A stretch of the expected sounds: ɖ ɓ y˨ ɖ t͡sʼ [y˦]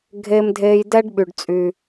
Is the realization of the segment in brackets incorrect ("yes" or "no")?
yes